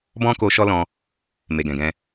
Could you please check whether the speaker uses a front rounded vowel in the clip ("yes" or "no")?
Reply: no